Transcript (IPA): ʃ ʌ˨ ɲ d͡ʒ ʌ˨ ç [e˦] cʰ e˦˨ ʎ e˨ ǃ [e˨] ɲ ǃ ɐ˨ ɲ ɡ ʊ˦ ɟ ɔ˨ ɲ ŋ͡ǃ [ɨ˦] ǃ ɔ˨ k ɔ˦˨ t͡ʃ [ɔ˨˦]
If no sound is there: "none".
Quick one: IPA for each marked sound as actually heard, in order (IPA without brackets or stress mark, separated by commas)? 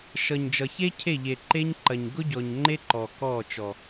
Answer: e˦, e˦, e˦, ɔ˨